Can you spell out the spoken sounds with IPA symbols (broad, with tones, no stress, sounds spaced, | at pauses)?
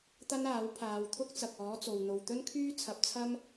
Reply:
t̪ ɐ˥ n aː˨˥ w pʰ aː˨˧ w t̪ʰ ʊ˥ k̚ t͡s ɐ˨ k̚ ɔː˨˥ t͡s o˨ w n̪ o˨ w t̪ ɵ˥ n kʰ yː˥ t͡sʰ ɐ˨˥ p̚ t͡sʰ ɐ˥ m